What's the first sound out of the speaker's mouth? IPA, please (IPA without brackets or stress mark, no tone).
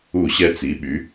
u